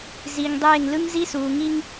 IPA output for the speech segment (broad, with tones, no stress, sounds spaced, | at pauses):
z i˨ ŋ dˤ eː˦˨ ŋ l ɯ˦ ŋ z i˦ s uː˨ ŋ i˦ ŋ